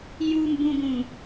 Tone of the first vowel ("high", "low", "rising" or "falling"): low